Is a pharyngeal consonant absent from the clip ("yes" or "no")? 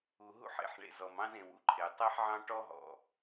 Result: no